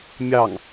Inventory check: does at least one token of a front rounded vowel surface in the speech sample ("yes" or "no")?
no